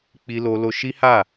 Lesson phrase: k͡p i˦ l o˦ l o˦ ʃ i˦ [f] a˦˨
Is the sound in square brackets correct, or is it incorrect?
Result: incorrect